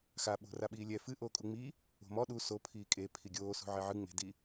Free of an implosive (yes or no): no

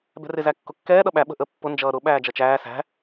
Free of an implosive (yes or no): no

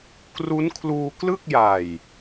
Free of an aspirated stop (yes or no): no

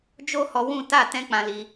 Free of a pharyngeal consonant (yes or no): yes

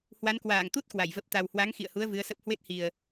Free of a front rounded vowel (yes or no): yes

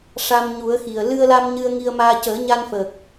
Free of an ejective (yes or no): yes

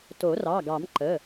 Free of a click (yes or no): no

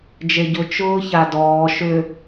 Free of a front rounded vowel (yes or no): no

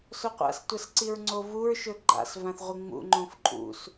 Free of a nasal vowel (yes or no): no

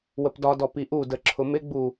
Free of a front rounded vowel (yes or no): yes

